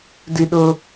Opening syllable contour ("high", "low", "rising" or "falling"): high